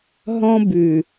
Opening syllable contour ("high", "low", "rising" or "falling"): high